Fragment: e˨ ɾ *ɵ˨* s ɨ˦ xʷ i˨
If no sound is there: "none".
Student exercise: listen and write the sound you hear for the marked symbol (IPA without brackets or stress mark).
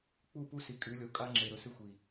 ɵ˨